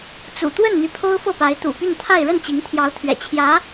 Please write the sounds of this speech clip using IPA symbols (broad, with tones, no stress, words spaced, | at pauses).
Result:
t͡sṵ˨˩t̪wə˥˩n n̪y˧˥pʰo˥ʊ̯fɤ˥˩pa˧˥ɪ̯ t̪ṵ˨˩py˥˧nt̪ʰa˥˧ɪ̯ ɻə˥˩nt͡ɕi˧˥ŋt̪ʰjɑ˧˥ʊ̯t̪ʰɥɛ̰˨˩ t͡ɕʰjä˧˥